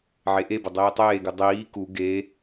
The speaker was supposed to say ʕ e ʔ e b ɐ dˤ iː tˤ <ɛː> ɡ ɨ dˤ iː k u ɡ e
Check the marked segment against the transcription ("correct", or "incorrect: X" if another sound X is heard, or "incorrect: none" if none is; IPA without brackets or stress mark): incorrect: eː